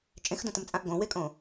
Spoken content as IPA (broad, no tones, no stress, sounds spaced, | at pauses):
t͡ʃʼ ẽ x d õ t ə m t͡sʼ ã ʔ ɡ õ w e kʼ õ